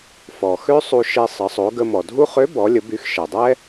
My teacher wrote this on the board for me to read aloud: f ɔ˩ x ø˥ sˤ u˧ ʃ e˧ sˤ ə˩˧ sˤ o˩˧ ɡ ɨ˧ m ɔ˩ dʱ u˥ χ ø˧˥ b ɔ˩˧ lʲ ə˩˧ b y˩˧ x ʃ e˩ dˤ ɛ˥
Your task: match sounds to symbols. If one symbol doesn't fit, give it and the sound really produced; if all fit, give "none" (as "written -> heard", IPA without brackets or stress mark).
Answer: ɨ˧ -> ə˧